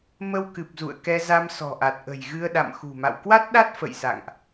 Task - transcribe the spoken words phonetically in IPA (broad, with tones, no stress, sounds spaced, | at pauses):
m ə˧ w k ɨ˨˩ p̚ z ṵ˧˨ ə̯ k ɛ˧ z a˧ m s ɔ̤˨˩ ʔ a˨˩ t̚ ʔ ə̤˨˩ j ɣ ɨ˧ ə̯ ɗ a̰˧˨ m x ṳ˨˩ m a̰˧˨ w k w a˦˥ t̚ ɗ a˦˥ t̚ f ə̰˧˨ j s a̰˧˨ ŋ ʔ